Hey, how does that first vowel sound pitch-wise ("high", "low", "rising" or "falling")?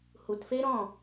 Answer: low